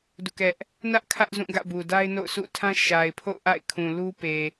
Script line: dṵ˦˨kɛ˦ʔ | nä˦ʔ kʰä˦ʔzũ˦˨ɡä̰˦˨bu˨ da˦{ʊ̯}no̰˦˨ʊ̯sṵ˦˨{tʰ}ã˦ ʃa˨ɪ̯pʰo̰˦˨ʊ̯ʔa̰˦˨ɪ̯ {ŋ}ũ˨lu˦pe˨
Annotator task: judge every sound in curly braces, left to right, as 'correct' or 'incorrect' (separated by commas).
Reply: incorrect, correct, incorrect